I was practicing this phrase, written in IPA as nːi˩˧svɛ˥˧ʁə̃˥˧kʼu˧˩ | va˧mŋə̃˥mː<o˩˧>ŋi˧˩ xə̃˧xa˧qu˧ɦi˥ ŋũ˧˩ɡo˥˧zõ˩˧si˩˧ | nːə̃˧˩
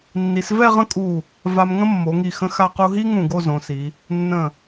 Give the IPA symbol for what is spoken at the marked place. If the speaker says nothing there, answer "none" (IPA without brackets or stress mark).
o˩˧